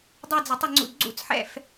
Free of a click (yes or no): no